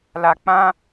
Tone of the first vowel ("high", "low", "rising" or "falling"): high